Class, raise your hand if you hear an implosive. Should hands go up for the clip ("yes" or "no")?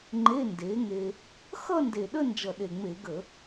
yes